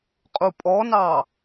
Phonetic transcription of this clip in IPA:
qʼupʼɔnɑ

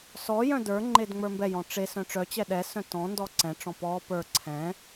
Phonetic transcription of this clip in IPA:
sɔjœ̃ də˞ ŋ͡ǃedŋ͡mə˞mbɛjɔ̃ ʈ͡ʂe sœ̃ʈ͡ʂœt͡ɕɛ ɗɛsœ̃ tɔ̃ndɔ ǀɛ̃ʈ͡ʂɔ̃ pɔ pə˞ ǀʰɛ̃

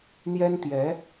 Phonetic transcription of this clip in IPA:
n̪jɛ˥nt̪jɛ˧˥

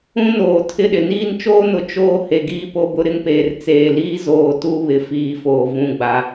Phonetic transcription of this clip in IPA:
ũ˦noː˨ tʰɪ˦ɗɪ˨ niː˦n t͡ʃoː˦nʊ˨ t͡ʃoː˦ he˨ɡiː˦ po˦bʊ˦ɾɪ˦ŋpeː˨r t͡seː˨liː˦ zoː˨ tu˦βɪ˨ fiː˨foː˨ vũ˨ɡ͡ba˨

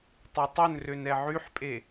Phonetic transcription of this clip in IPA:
tˤetˤɵnrøn ɛʕyħpʼe

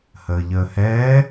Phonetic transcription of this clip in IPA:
həːʎəːhɛː

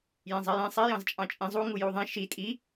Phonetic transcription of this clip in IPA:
jẽzˤijẽ sˤijɑ̃z t͡ʃʼɑ̃t͡ʃʼĩ zˤuŋuju ðˤẽ ʃi tʼi

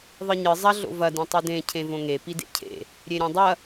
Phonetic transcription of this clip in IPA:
ðˤɨɲɨ zˤɐ ɮo̰vɐ dĩtˤʉdẽ cʰẽvõŋe pidḛcʰḛ | ɾʲeɾʲõdˤɐ

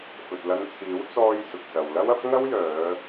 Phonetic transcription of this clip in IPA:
fɵ˨t̚ lɐ˧nt͡sʰiː˨˥w t͡sɔː˧j sʊ˨k̚sɐ˨w lɐ˥wɐ˥p̚ ŋɐ˥wjœː˨˧

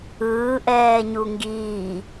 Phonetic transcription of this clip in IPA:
ɯːʔɛːɲu ŋɡiː

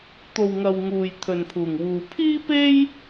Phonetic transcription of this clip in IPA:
t̪o˨wŋɐ˨w ŋuː˨j t̪ʰɵ˨npʰuː˨˩ŋwuː˨ pʰiː˥pe˥j

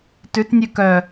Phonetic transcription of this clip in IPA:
tʉtnʲʉ kœ

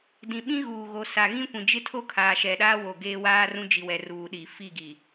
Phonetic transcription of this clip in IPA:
dĩ˨ɓĩ˦ɣuː˨ɣo˨ sa˨ɣĩ˦kʷĩ˨ d͡ʒɪ˦tʰo˦kʰaː˨ ʃɛ˨ ɗaː˦wo˨ ɡeː˦waː˦rũ˦ d͡ʒi˨wɛ˨ ruː˨ɗi˨ fi˦˨ ɡi˨

